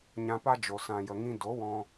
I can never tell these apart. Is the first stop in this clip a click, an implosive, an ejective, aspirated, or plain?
plain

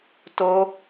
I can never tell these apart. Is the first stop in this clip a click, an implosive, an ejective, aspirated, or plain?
plain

